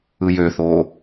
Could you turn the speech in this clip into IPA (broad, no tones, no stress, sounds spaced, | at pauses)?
ɯ j ø θ oː